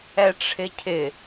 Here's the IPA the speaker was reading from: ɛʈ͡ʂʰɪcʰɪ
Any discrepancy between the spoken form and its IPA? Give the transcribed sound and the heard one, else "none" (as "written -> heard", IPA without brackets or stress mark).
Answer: none